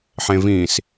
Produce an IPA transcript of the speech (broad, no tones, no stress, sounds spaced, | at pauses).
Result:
ħ ẽ v ĩ s